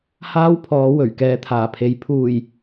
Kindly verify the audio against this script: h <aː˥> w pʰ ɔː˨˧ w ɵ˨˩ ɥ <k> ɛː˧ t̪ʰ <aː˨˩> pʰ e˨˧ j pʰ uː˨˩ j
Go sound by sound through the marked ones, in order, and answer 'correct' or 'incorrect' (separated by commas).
correct, correct, correct